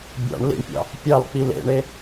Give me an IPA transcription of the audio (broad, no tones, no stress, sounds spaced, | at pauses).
bʲ ɑ̰ ɳ l ḭ ɳ pʲ ɑ̰ | pʲ ɑ l k͡p i l ḛ ɳ e